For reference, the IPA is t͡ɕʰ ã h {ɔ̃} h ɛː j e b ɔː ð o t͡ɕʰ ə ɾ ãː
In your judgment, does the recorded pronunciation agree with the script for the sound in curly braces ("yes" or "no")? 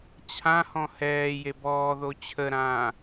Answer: yes